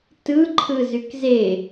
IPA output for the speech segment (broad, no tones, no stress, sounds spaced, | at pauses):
t ɯ ǃʰ ɯ z y k z e